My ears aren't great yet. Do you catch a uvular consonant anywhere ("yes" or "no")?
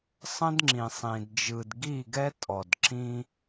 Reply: no